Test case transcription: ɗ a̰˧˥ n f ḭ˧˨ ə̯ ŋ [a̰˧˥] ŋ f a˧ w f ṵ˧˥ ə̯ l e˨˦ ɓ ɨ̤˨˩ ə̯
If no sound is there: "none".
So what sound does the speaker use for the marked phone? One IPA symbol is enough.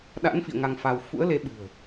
a˧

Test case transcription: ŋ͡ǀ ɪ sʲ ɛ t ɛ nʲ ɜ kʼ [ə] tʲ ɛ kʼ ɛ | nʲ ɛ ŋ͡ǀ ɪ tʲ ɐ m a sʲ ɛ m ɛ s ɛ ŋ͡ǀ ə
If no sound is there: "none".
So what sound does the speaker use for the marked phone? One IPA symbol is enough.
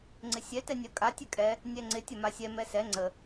a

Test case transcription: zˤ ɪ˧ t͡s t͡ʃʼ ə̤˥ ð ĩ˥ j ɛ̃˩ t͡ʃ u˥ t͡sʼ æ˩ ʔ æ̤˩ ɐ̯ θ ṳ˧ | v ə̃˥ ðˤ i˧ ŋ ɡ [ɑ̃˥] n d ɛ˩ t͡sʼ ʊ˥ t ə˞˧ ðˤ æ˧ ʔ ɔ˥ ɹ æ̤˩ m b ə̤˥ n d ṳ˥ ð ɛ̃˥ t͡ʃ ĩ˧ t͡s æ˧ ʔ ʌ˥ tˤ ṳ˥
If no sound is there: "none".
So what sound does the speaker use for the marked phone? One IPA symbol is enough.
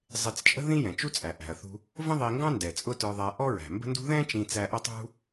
ɑ̃˥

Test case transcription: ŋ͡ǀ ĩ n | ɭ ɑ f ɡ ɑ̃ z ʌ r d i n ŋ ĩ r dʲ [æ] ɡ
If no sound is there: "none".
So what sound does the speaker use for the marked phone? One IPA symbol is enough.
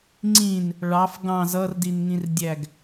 æ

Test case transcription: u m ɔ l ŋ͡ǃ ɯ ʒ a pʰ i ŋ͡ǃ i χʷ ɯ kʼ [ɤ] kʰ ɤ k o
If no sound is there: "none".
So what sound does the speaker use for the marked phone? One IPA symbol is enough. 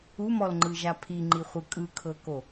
ɯ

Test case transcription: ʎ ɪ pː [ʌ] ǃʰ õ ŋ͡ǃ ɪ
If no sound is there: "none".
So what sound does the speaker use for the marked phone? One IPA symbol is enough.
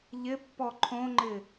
ɔ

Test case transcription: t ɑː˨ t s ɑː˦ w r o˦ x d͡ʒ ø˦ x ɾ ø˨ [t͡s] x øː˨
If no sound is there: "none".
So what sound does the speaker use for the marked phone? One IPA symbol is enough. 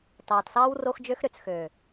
t͡s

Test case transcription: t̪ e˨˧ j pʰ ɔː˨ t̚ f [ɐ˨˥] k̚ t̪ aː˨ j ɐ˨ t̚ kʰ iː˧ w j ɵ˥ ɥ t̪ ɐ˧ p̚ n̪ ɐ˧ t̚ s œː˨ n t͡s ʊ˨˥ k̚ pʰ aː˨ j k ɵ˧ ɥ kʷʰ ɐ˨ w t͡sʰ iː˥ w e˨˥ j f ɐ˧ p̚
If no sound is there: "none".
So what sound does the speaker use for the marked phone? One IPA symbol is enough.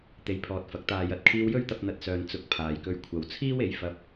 ɐ˨˥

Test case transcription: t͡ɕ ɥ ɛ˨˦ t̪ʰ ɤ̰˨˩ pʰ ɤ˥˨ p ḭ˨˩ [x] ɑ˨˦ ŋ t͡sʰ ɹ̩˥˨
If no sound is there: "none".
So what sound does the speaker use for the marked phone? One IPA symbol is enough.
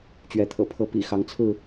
x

